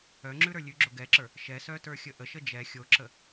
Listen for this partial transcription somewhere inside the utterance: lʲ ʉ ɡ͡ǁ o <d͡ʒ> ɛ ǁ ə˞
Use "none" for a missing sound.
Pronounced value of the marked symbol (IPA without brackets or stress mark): ɡ